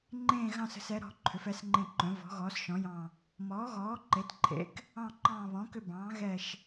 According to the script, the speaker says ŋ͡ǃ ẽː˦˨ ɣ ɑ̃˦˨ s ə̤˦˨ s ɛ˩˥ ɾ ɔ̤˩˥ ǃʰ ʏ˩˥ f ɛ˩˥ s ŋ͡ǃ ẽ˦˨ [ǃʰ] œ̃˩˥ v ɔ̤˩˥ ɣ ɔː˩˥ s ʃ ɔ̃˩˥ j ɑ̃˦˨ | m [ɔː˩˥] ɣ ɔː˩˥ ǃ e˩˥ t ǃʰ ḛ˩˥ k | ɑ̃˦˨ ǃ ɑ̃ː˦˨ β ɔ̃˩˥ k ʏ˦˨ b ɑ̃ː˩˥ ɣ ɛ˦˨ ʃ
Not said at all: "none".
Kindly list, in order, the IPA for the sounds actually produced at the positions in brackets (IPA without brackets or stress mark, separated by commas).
ǃ, ɔː˩˥